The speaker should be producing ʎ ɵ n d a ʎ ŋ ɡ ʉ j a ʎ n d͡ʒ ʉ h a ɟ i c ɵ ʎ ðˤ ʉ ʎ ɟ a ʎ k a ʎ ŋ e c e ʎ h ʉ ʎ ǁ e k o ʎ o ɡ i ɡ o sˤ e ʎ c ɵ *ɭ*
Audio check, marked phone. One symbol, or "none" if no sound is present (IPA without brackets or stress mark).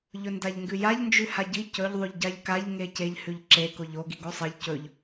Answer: ʎ